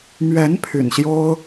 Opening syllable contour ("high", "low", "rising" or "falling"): rising